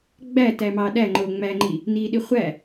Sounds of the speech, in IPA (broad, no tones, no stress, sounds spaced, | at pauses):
ɡ͡b æ t æ m ɑ ɗ æ ŋ͡ǃ o ŋ͡m æ ŋ͡ǃ i | n i ɗ i χʷ æ